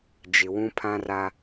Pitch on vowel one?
low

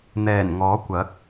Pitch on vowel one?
low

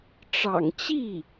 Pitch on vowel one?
low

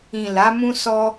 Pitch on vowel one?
low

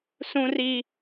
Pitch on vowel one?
high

